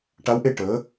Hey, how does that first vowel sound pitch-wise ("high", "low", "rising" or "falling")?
rising